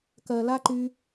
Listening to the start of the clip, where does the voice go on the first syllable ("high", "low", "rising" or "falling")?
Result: low